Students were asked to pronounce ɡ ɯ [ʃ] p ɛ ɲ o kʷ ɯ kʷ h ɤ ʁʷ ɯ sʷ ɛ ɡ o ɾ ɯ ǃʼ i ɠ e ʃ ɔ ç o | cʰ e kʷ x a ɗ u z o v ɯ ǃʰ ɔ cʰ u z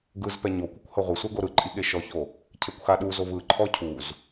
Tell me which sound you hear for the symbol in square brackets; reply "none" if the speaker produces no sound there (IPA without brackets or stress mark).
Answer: z